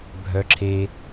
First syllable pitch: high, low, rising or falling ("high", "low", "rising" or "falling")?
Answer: low